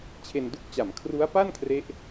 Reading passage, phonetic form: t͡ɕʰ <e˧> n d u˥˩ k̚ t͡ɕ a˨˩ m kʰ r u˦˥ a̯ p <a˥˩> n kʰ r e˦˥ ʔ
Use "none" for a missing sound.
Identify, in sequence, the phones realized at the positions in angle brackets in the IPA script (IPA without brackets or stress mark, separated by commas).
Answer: e˧, a˥˩